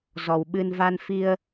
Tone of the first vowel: low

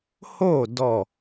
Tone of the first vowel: falling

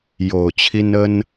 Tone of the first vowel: low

